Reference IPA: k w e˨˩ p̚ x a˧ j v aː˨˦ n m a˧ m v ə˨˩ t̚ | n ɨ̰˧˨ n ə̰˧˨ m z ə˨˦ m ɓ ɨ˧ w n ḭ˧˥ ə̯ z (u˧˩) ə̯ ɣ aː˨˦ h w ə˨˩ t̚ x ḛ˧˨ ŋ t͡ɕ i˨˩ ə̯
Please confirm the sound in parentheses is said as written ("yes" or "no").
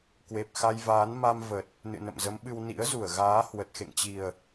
yes